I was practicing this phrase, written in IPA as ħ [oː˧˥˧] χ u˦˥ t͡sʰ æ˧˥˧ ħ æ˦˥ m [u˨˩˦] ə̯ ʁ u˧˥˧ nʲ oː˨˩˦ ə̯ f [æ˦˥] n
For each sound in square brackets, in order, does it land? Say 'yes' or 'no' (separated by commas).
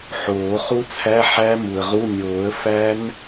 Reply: no, no, yes